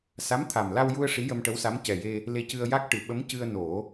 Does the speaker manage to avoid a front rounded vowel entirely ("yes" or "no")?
yes